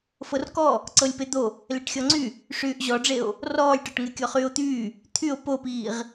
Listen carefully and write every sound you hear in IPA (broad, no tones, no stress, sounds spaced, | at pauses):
f ɤ r k ɔ | ǀ ɤ lʲ p e d̪ o | l e ʈ xʲ ɔ ŋ͡ǀ y | ʂ yː ʔ ʑ ɔ ɖ͡ʐ e o̯ | r ɔː lʲ ʈ ɔ ʈ ŋ e kʲ ɔ χ yː o̯ t̪ yː | t̪ʰ y o̯ p o p iː ʁ